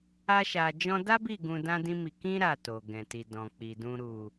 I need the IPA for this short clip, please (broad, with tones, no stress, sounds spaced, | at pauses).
a˦ ʃ a˧ d͡ʒ ɔ̃˦ d a˦ b i˦˨ ɡ ũ˧ d ã˦ d ĩ˦ m i˧ k ĩ˦ ɾ a˦˨ t o˨ ɡ ɛ̃˨ t i˨ d ɔ̃˨ k͡p i˨ d ũ˧ ɾ u˨